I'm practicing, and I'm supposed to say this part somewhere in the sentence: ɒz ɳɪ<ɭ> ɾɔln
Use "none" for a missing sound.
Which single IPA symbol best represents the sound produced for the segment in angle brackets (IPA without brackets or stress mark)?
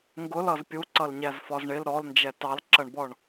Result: l